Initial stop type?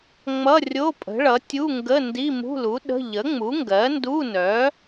ejective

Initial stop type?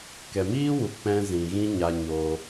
plain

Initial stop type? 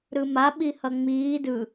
implosive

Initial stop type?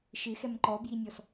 click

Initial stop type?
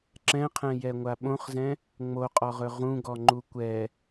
click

